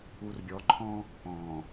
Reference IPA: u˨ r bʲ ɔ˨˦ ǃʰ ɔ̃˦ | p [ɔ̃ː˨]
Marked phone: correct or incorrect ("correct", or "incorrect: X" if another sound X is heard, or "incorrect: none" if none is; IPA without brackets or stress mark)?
correct